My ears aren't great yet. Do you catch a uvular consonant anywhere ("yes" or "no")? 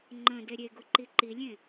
no